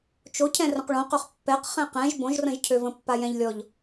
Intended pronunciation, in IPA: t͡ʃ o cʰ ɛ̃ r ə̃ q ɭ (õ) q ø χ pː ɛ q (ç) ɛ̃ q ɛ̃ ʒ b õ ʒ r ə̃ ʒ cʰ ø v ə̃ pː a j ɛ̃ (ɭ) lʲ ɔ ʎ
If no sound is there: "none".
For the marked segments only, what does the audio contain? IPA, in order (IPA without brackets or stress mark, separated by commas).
õ, χ, ʎ